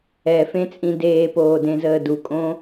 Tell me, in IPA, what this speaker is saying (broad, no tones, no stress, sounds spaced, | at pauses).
ɛ f ẽ t͡sʼ ĩ d eː p oː d ẽ z əː d u kʼ õ